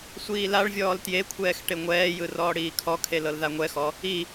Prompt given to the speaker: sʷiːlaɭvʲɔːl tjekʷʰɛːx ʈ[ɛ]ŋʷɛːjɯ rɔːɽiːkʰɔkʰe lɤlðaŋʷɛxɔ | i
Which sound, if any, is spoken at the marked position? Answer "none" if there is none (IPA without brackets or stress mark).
e